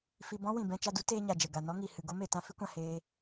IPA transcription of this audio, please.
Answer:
f i˧ b ɔ̃˦ w ĩ˨ b ɛ̃˧ t͡ʃ a˧ d u˦ t eː˦ ɲ a˨ d͡ʒ ɛ˨ ɡ a˨ n ɔ˦ ŋ i˨ h ɨ˨ ɡ o˦ m e˨ t ã˦ f i˦ kʷ ã˨ h eː˧

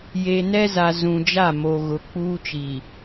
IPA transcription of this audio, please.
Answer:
j e˨ n ɛ˦ z a˨ z ũ˨ d͡ʒ a˦˨ m o˨ ɣ ʊ˨ k͡p uː˦ t͡ʃ i˨

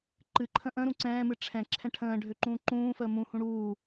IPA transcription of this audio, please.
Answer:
ǃ ɨ ǃʰ ə̃ ʔ ə̃ ɾ ũ ǀ ɛ̃ː m ɨ ʈ͡ʂʰ ɛ̃ ǁʰ ɛ̃ ʈʰ ə̃ː ɖʱ ø ǃ ũː ǃ ũː f əː m ũ h ũ ɽ uː

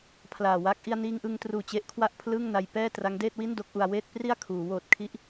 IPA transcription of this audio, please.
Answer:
pʰ l aː˨˩ w a˦˥ k̚ ʔ i˧ a̯ n iː˧ ŋ ʔ ɯ˧ ŋ t r uː˨˩ t͡ɕ e˦˥ ʔ kʰ w a˥˩ ʔ pʰ l ɯː˥˩ ŋ n a˧ j p ɛː˥˩ t r a˦˥ ŋ d eː˥˩ t̚ w i˥˩ n d o˦˥ k̚ ʔ u˧ a̯ w eː˥˩ t̚ p r i˥˩ a̯ kʰ uː˩˦ w oː˨˩ t̚ kʰ i˦˥ ʔ

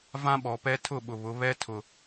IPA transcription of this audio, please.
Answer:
v ã˦ ɓ ɔ˨ p ɛ˦ tʰ ʊ˦˨ ɓ ʊ˨ β ʊ˨˦ β ɛ˦ tʰ ʊ˨

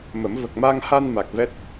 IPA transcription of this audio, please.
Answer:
m ə˨˩˦ m v ə˨˩ k̚ m a˧ ŋ h a˧ n m a˨˩ k̚ v ɛ˦˥ t̚

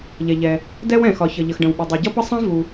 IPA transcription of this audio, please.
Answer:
ʎ ɛ˩ ʎ ɛ˩ | d ɛ˥ w ɛ̃˩ x ɒ˩ ç ʌ˩ ʎ ə˩ x ɖ ə̃˩ w ɓ ə˩ dˤ ɛ˩ ɟ ʌ˥ p ʌ˥ sˤ ɛ̃˥ v u˩

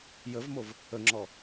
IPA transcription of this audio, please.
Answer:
j ə v m o v | ə ŋ͡ǁ ɔ

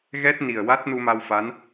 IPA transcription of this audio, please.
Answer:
ɣ ɛ˦˥ t̚ n i˨˩ ə̯ w a˦˥ t̚ n u˧ m a˧ w f a˧˥ n

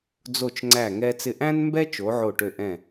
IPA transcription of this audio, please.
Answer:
d͡z o˧˩ t͡ʃ ŋ͡ǀ æ˧˩ ŋ ɛ˧ t͡s ɪ˧˩ ʔ æ̃˥ n m b ɛ˥ t͡ʃ o˩˧ ʕ o˧˩ ʈ ø˧˩ ʔ ɛ̃˧˩

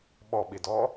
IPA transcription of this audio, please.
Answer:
ɓ ɔ ɓ i d ɔ

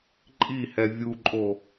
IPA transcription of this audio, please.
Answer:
ǃʼ i h ɛ vʲ u ǃʼ o

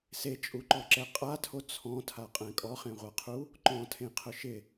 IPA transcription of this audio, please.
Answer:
s e t͡ʃʼ u ǃ ɔ ǁ ɛ qʼ a tʰ o t͡sʰ ɔ̃ tʰ a qʼ ɛ̃ kʼ ɔ χ ẽ ʁʷ a qʰ u | ǃ ɔ̃ tʰ ẽ qʰ ʊ ʃ ɪ

